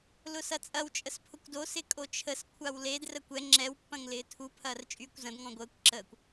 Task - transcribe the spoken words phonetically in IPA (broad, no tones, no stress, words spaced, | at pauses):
lʊsɐt͡sʼɐw t͡ʃʼəspʰʊkʷdo sɪkʼot͡ʃʰəs kʷʰawled rəkʷɛ ŋ͡ǁɛwpːɐ̃ŋ lɪːtʰu pʰɐːrt͡ʃʼyːkʷzɐ̃d ŋɔ̃ɡʷəːkʷ ǁəːkʷ